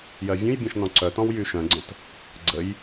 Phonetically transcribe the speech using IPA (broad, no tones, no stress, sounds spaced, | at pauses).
j ɜ vʲ ũ j bʲ ɔ̃ ʃ n ɔ̃ ǀ œ t ɔ̃ w j y ʃ œ̃ ɡ͡ǀ ə̃ t | ɡ͡ǀ ə j